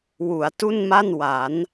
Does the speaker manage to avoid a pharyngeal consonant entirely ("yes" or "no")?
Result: yes